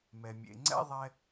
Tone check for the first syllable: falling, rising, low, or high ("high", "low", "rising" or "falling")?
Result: low